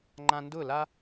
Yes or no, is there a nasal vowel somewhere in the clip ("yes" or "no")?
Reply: yes